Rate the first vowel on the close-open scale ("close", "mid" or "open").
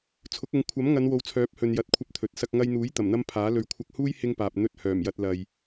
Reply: close